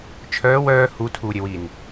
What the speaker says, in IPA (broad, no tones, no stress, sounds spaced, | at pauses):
t͡ʃʰ œː w œː h u tʰ uː ɾʲ ɛ w i n